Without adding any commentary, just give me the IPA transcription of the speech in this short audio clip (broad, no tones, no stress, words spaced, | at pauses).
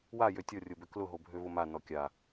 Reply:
wajø tʲɔrʲobʏ klʊɦobʱøvʊ manɔ kʲa